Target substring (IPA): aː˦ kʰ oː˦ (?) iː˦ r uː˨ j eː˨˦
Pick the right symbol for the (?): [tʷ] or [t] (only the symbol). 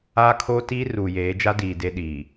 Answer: t